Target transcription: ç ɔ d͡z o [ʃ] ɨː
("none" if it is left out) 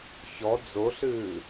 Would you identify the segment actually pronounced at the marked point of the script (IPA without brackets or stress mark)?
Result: ɬ